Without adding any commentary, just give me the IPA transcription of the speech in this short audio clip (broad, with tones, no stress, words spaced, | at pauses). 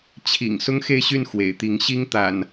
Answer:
t͡ɕʰḭ˨˩ŋ sʊ˦ŋxe˥˨ɪ̯ɕy˥˨n xwḛ˨˩ɪ̯t̪i˨˦ŋ ɕi˦ŋt̪a̰˨˩n